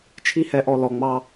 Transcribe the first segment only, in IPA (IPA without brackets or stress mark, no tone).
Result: t͡ʃʰ